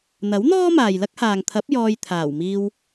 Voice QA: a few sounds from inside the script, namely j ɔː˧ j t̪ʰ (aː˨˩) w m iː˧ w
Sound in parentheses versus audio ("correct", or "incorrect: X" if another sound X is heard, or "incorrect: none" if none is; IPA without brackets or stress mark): correct